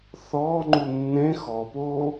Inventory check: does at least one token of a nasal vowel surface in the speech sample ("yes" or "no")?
yes